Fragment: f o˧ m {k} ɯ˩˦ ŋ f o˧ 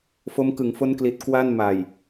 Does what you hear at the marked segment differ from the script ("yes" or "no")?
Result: no